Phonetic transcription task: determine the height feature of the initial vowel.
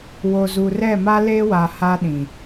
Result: mid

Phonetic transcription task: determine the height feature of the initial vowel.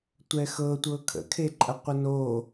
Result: mid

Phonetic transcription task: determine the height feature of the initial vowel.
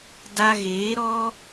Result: low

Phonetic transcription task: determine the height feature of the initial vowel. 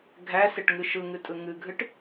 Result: low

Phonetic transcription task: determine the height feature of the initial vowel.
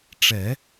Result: mid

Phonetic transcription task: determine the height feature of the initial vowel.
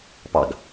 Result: low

